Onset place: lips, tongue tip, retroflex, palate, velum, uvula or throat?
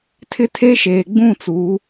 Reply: tongue tip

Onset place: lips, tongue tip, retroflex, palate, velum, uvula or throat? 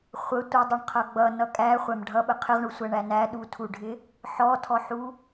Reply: uvula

